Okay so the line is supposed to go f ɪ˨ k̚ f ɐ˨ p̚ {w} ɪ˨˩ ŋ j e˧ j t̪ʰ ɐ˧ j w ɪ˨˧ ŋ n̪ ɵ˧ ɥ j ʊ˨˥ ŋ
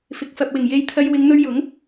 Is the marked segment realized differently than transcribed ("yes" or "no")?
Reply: no